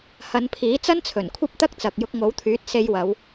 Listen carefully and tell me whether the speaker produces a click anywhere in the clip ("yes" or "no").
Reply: no